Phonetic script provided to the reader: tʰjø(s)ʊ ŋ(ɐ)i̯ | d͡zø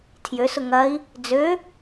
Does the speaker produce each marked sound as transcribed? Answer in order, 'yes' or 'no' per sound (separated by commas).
yes, yes